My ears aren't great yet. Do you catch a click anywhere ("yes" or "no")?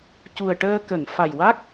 no